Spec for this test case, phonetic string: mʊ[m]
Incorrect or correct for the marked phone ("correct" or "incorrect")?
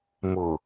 incorrect